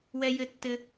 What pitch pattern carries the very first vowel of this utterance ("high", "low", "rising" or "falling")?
high